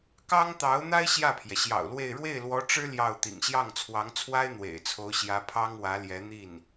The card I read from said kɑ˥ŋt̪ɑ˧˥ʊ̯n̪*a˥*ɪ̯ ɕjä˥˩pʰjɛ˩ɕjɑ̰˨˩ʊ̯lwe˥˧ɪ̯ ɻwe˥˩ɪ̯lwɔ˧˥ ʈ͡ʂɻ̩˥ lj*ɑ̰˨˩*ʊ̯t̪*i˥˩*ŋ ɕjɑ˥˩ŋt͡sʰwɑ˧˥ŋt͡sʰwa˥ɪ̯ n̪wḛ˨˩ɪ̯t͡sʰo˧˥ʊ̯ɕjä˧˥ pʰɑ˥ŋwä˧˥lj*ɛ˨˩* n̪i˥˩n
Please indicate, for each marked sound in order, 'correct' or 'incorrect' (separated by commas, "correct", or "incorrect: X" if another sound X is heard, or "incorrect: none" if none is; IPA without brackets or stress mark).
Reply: correct, incorrect: ɑ˥˩, incorrect: ḭ˨˩, incorrect: ɛ˧˥